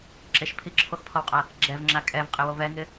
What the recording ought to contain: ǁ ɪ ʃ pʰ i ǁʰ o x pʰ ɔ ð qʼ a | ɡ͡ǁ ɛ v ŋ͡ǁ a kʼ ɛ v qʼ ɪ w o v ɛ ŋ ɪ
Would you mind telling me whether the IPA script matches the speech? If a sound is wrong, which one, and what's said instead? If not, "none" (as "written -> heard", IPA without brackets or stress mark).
ð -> w